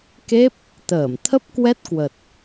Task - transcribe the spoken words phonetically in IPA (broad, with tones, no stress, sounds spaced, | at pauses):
k e˦˥ p̚ | t̪ əː˧˩ m t̪ʰ ə˦˥ p̚ k w ɛ˦˥ t̚ k w ə˨˩ t̚